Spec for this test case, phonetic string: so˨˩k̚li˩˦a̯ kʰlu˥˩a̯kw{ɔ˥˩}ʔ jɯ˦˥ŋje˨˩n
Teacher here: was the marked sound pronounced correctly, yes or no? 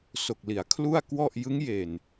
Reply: yes